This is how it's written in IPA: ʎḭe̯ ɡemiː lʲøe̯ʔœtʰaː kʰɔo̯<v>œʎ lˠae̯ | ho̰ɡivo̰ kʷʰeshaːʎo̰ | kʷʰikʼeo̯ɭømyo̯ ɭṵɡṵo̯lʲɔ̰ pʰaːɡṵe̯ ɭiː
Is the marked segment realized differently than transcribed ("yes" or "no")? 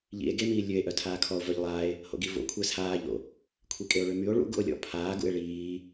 no